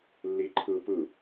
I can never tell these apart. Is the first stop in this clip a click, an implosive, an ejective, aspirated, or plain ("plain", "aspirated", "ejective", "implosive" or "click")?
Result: click